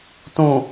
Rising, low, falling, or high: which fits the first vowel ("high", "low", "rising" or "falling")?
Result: low